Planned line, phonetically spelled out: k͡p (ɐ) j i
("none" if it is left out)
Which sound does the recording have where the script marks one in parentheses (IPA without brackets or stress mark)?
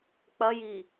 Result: ɐ